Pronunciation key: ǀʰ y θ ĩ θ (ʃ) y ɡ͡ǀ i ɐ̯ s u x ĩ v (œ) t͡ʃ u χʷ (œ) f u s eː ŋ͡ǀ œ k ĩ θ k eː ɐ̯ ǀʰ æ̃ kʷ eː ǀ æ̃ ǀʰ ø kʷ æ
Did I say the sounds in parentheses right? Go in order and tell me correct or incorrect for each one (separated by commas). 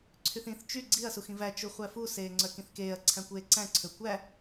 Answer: incorrect, incorrect, incorrect